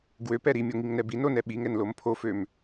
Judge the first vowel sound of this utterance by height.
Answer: mid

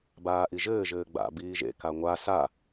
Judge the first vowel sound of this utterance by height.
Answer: low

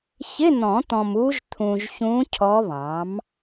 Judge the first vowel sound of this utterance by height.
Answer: high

